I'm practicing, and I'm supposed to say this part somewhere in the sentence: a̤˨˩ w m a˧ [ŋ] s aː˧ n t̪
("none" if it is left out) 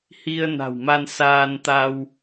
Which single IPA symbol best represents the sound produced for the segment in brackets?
n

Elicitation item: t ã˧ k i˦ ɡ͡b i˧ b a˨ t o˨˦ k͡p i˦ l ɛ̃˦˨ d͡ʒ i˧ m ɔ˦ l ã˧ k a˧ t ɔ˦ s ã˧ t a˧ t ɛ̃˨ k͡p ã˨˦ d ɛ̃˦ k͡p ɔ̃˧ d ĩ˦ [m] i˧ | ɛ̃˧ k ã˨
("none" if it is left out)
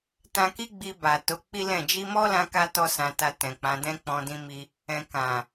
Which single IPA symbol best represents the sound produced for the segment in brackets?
m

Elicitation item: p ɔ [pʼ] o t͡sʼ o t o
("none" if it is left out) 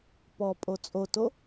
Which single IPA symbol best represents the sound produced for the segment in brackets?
pʼ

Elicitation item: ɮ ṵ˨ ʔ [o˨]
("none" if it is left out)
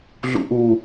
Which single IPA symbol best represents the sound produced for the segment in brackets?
u˨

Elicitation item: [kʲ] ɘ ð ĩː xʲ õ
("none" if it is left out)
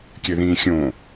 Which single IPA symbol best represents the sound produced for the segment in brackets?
kʲ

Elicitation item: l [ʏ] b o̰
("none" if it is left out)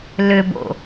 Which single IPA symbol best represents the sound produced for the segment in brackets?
ʏ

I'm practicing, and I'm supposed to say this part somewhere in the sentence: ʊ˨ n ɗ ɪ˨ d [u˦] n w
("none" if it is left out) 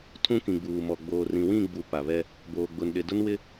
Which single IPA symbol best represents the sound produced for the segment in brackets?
ʊ˦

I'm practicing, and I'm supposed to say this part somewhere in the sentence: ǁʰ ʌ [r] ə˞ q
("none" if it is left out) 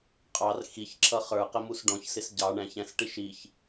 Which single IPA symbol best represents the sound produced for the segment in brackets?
χ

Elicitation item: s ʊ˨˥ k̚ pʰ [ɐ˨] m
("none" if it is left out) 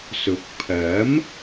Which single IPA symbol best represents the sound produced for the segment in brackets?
ɐ˨˥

